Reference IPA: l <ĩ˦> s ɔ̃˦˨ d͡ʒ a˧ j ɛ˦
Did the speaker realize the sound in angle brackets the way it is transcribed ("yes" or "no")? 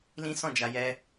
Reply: yes